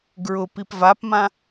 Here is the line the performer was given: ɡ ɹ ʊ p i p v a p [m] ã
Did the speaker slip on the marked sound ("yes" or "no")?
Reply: no